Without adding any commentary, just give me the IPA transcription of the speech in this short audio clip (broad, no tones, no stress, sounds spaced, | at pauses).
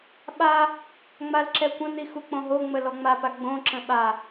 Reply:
ɓ a | ŋ͡m a l ǁ ɛ kʷ ə̃ n̪ i x u k͡p õ ɦ o ŋ͡m ə l ɔ ŋ͡m a p a ɡ͡b õ ǁ ə̃ ɓ a